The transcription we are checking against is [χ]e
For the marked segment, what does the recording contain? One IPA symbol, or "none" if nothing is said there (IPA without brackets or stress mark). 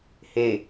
h